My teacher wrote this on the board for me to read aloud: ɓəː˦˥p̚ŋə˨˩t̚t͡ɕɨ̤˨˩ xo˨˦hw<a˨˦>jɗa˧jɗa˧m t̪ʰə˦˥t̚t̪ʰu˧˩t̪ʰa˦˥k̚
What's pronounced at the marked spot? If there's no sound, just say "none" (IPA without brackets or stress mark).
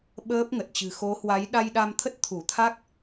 a˨˦